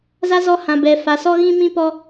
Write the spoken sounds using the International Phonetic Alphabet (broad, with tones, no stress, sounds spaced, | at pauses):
z a˦ z ɔ˦ h ã˨ b ɛ˨ f a˨ s ɔ˦ ɣ ĩ˦ m ĩ˦ p ɔ˦